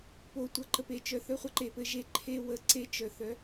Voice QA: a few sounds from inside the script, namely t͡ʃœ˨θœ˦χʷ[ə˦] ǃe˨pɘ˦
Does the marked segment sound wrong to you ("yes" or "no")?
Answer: yes